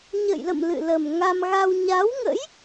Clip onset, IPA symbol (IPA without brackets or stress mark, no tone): ɲ